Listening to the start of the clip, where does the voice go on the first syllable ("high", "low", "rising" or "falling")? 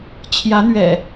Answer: rising